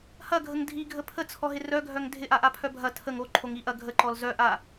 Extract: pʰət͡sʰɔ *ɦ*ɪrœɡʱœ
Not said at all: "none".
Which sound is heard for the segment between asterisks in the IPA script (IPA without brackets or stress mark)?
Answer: ɦ